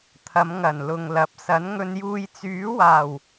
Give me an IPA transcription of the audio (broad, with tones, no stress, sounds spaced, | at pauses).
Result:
t̪ʰ ɐ˨˧ m ŋ ɐ˨˩ n l ʊ˨ ŋ l ɐ˨˥ p̚ s ɐ˨˥ n ŋ ɵ˧ n j uː˧ j t͡s yː˨˥ w aː˨˩ w